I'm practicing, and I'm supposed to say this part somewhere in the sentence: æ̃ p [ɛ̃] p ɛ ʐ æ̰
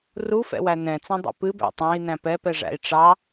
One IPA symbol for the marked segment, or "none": ɛ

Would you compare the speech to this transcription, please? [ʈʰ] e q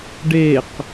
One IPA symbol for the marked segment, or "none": ɖ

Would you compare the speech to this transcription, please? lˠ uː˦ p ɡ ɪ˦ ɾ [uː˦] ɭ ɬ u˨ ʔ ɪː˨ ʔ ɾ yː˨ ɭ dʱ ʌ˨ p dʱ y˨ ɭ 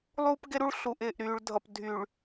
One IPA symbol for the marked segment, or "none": u˦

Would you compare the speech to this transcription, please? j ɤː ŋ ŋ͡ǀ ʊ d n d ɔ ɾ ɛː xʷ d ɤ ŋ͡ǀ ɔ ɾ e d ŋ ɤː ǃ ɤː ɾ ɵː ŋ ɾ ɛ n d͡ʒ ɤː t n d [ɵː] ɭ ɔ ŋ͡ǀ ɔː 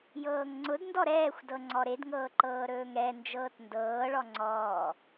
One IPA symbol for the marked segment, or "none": ɤː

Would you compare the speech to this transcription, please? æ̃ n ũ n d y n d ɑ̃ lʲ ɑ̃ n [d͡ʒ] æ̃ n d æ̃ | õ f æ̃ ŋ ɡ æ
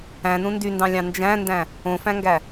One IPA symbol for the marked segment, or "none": d͡ʒ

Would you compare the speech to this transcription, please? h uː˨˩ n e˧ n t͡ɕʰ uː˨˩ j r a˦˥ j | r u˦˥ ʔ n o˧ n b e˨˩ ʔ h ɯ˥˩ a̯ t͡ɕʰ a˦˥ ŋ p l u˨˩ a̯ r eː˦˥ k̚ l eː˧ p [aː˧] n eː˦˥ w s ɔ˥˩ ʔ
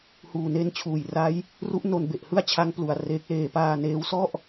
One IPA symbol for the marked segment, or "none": aː˧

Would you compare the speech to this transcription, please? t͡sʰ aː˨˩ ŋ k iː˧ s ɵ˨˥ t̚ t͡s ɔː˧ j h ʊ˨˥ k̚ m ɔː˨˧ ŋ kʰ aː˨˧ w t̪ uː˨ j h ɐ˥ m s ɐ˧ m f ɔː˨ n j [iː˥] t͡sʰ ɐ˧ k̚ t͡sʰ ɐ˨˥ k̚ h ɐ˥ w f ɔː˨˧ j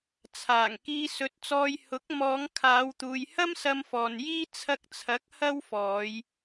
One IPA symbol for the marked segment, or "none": iː˥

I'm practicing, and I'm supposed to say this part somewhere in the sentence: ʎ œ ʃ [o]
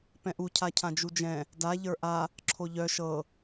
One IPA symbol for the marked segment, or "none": ɤ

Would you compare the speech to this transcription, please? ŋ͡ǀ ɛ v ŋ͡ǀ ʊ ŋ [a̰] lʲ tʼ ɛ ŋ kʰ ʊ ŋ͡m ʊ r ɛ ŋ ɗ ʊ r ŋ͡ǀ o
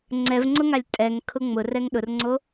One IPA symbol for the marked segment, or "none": a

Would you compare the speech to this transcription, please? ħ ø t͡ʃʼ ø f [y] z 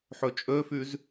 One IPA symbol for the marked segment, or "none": y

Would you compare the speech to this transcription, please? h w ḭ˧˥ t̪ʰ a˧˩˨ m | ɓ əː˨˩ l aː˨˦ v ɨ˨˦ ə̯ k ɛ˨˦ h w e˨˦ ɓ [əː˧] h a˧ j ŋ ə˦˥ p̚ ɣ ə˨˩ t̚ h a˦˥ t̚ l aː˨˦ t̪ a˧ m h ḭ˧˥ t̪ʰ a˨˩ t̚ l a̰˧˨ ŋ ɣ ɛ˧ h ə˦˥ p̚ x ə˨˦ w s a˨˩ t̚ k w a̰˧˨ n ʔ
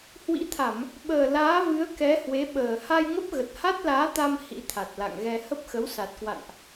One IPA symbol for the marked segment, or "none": əː˨˩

